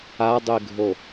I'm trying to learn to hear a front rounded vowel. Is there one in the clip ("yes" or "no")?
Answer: no